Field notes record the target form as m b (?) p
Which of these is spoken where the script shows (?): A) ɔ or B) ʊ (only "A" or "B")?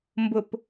B